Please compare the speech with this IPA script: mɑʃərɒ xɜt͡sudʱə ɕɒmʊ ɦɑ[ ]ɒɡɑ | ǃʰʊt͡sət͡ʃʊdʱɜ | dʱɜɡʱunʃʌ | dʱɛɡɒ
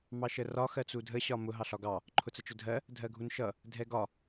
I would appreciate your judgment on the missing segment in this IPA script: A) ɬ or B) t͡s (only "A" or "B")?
A